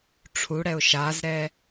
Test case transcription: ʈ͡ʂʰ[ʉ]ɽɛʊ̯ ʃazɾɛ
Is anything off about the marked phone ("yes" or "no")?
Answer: yes